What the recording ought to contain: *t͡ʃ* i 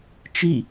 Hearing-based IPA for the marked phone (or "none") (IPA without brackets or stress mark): t͡ʃ